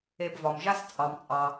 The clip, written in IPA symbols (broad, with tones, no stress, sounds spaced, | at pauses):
e˨ b v ɒ˩ m ʒ a˦ s t͡sʼ ɑ˩ m t͡sʼ ɑ˩